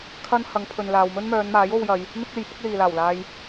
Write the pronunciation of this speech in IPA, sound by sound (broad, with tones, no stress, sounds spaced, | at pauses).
kʰ ɐ˥ n h ɐ˨˧ ŋ pʰ ɵ˨ n l aː˨ w m ɵ˥ n m œː˨˧ n m aː˨˥ j o˧ w j ɐ˨˧ j | n̪ ɪ˥ k̚ e˨˧ j p ʊ˥ k̚ l iː˨ l aː˨˩ w l aː˧ j